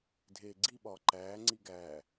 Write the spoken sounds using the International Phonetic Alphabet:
dʱ eː ɡ͡ǀ i ɓ ɒː ǃ æː ŋ͡ǀ i ɡ æː

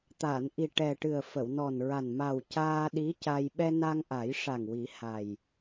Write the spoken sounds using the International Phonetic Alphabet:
t̪ a˨˩˨ n ʔ i˨˩ ʈ ɛ˨˩ ʈ ɨ˨˩ ə̯ f ə˨˩˨ w n ɔ˨˩ n ɹ a˨˩ n m a˨˩ w c aː˧ ɗ i˧˥ c a˧ j ɓ ɛ˧ n a˧ ŋ ʔ a˨˩˦ j ʂ a˨˩ ŋ w i˨˩˦ h a˨˩ j

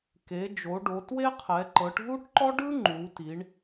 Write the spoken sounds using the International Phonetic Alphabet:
k e˨˦ d͡ʒ o˨˦ ɖ o˨˦ t w e˥ qʰ ɛ˨˦ ǃ ɤ˨˦ ʈ ð u˥ ʈ ǃ ɔ˥ ɖ ɯ˥ ŋ͡ǃ u˨˦ t i˨˦ ɳ

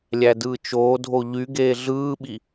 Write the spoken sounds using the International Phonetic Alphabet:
lʲ æ d ɯː t͡ʃ oː dʱ o ʎ y ɡ eː ɮ ɯː ɓ i

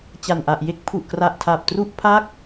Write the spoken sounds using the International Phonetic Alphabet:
t͡ɕ a˨˩ n ʔ a˨˩ ʔ j e˥˩ k̚ pʰ u˨˩ ʔ k r a˨˩ ʔ tʰ a˨˩ p̚ t r u˥˩ ʔ pʰ a˥˩ k̚

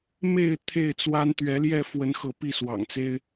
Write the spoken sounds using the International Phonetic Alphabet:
m e˥˨ ɪ̯ t̪ʰ e˥˨ ɪ̯ t͡s w a˦ n t̪ ɥ ɛ˨˦ l j ɛ˥˨ f w ə˨˦ n x ɤ˨˦ p i˥˨ s w ɑ̰˨˩ ŋ t͡s e˦ ɪ̯

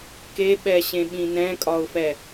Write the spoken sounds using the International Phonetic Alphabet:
k e ɓ ɛ ɕ ẽ ɓ ĩ n ɛ̃ kʼ ɒ ʊ̯ f ɛ

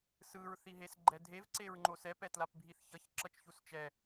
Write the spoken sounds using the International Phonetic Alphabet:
s ɯ ɹ θ i ɦ e s ɡ͡ǃ ɛ dʱ e v ǀ e ɹ ŋ͡ǃ o s ɛ p ɛ t l a p bʱ i θ ç ʌ ç ǁ ʌ t͡ʃ ç u s t͡ʃ ɛ

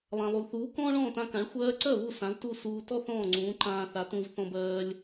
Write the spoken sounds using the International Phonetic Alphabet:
lˠ ã˩ lˠ u˩ l θ uː˩˥ k ɔ̃ː˥ ɭ ɔ̃ː˥˩ t ã˧ k ã˩˥ ɭ xʷ ɜː˧ ǀ ɜ˥˩ β u˥˩ s ã˩˥ z t u˥˩ s uː˧ t ɔ˥ θ ɔ̃ː˥˩ ŋ͡ǀ ũː˩˥ ǃ ãː˧ θ a˩˥ t ũ˧ z θ ɔ̃˧ b ɜː˧ lʲ

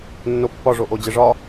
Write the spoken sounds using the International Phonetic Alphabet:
nː o pː ɒ ʐ o ʔ o d͡ʑ e ʐ ɒ

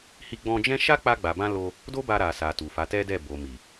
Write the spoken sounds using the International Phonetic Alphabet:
h i˧ ɡ͡b ɔ̃˧ d͡ʒ ɛ̃˦ ʃ a˦ k͡p a˧ ɡ͡b a˨ b ã˧ l o˧ | d o˦ b a˧ ɾ a˨ s a˨ t u˨ f a˨˦ t ɛ˦ d ɛ˦˨ b o˨ m i˨

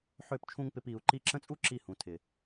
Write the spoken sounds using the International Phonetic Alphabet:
ħ ø˦˨ p t͡ʃʰ ũ˦ ŋ p ɪ˧ p i˨ u̯ ǃ i˧ ǁ ə̃˦ t͡sʼ u˦ ǁ i˦˨ h ũ˨ tʰ ɪ˨

